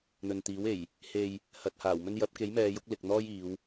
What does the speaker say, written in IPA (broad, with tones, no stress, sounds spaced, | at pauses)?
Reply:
n̪ ɵ˨ n t̪ iː˨˥ w e˨˩ j | h e˨ j | h ɐ˨ t̚ h aː˨˩ w m ɵ˥ n j ɐ˨˥ p̚ k e˨˥ j m ɛː˨˧ j ʊ˨˥ k̚ l ɪ˨ k̚ n̪ ɔː˥ j iː˨˧ w